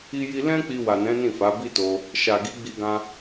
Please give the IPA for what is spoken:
i˦ji˦ lɛ̃˦ k͡pi˧wa˨nɛ̃˨˦ nĩ˦˨fa˨˦ bi˦to˧ | ʃa˨ɡi˨˦ɡ͡bi˧ɡã˧

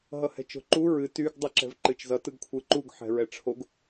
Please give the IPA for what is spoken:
ɦʌhɛ̤t͡ʃo̤ǃu ɹɨ tyɡ dˤɨǁɛ̤vǃɨt͡ʃzʌ tɯɡkʷʰɯǃuɡ ħɛ̤ɹɛʈ͡ʂʰoɡ

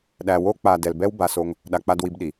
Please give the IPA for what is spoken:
ɗæ˨wo˧k͡pa˨ dɛ˨lbɛ˦w ba˧ so˦ŋ | ɗa˨k͡pa˧dwi˧bɗi˨

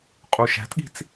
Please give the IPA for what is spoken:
qʼuʃæ̤tɠi̤t͡s

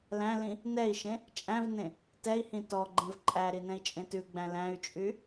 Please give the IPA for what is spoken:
læ̃lĩ | nɛi̯ʃẽ | t͡ʃʼæ̃vnẽ | tɛi̯hĩ tɔɡ͡ǃɛ̃v ǃʼæɾi nɛ̃i̯t͡ʃʼẽtʉɡ͡bæ̃ læ̃y̯t͡ʃʼy

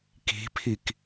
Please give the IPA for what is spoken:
ki̤pʰik

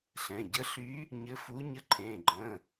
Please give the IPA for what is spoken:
ɬɛ̃˩˧˩ɟə˧˥ɬy˧˥ | ɲɘ˧˥fu˧˥ ɲə˧˥ǃʰẽ˩˧˩ɡ͡ǃə̃˩˧˩

